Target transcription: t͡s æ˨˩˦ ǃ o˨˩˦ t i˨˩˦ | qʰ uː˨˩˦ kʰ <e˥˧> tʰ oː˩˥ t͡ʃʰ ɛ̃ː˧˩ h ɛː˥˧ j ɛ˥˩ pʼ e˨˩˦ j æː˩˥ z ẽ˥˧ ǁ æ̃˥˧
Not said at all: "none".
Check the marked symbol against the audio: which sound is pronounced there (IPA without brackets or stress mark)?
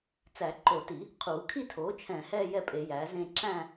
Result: i˥˧